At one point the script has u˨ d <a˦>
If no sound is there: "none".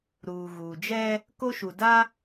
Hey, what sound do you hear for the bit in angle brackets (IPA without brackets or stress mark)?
a˦